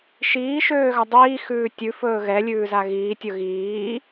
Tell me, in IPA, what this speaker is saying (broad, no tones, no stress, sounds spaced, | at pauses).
ʃ iː ʃ øː ɣ a dˤ iː x ʉː tʲ ʉ f ɵː ɣ ɛ lʲ ʉː z a ɣ iː tʲ ɵ ɣ iː